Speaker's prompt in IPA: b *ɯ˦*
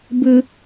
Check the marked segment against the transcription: correct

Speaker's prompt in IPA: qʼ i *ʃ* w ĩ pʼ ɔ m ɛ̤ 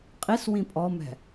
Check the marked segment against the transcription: incorrect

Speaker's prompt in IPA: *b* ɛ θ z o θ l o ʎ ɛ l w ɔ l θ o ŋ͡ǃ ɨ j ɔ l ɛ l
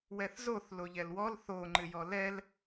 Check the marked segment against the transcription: incorrect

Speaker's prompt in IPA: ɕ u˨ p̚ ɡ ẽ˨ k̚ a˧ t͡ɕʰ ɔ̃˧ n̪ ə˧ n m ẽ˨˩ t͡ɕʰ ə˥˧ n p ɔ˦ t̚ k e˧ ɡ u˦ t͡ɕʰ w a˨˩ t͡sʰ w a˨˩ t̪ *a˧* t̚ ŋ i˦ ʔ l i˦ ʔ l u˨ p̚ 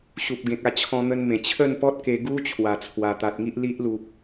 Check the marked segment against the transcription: incorrect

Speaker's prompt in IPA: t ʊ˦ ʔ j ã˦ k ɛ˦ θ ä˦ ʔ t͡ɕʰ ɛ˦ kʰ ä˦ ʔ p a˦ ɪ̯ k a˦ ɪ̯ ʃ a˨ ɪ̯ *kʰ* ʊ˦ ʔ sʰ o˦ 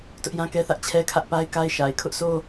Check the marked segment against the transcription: correct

